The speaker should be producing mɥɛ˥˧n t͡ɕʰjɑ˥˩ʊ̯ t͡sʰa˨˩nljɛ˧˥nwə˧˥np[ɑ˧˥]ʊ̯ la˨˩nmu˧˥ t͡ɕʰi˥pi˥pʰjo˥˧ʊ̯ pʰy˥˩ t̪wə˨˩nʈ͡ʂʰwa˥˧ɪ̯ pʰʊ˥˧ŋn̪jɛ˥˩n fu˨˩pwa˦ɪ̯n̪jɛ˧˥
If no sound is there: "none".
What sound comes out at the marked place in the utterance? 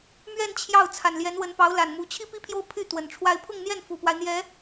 ɑ˧˥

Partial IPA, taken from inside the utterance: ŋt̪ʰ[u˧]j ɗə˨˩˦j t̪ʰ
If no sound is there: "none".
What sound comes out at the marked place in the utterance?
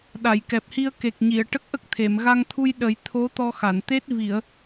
u˧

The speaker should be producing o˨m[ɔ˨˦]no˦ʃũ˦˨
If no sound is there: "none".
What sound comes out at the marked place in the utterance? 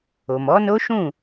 ɔ˨˦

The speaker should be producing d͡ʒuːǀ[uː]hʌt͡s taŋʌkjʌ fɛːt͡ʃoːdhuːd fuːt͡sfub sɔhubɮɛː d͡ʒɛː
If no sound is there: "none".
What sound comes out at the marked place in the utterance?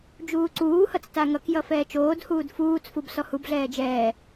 uː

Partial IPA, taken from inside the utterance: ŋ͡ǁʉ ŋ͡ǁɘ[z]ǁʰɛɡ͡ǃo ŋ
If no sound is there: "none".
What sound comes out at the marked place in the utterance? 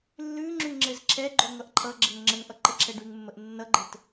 z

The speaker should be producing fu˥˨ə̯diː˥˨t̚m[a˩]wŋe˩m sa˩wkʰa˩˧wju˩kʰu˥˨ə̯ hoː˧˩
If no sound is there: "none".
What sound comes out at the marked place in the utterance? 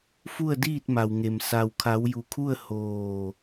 a˩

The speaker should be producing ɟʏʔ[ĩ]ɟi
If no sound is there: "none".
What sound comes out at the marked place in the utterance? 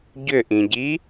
ĩ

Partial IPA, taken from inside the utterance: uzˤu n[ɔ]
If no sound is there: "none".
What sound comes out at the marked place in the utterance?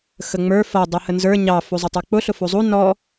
ɔ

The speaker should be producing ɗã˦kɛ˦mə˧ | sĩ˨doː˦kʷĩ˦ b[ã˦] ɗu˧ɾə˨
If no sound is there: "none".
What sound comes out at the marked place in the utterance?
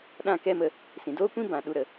ã˨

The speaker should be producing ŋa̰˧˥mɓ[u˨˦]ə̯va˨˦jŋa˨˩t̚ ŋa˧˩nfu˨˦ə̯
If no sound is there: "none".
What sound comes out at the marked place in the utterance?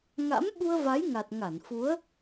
u˧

